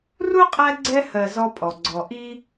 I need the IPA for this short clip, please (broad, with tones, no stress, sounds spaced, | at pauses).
r u˥ qʼ æ˦ ɡ͡ǀ ɛ˥ h ɜ˨ z ɔ˦ pʼ ɔ˩ ɡ͡ǀ ɔ˨ ʔ i˥